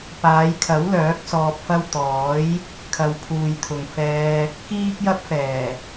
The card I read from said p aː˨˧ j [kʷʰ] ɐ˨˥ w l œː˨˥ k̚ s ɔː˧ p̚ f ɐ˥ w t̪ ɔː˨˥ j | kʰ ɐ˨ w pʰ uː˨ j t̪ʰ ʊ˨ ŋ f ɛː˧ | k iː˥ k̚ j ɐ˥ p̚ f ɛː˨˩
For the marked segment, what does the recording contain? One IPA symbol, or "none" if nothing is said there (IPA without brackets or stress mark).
kʰ